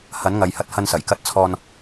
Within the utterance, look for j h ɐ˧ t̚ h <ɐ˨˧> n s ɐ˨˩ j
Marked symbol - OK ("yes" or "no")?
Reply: no